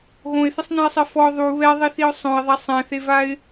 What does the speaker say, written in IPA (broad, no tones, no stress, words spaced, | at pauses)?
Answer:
ɣõɪ̯θɪsˤnɛ̃ɪ̯sˤe fɔ ðˤu βɛðˤiθiʊ̯ sˤõɪ̯ðˤa sˤɛ̃θevaɪ̯